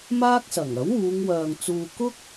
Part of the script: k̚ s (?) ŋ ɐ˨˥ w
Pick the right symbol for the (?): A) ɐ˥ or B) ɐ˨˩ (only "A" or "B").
B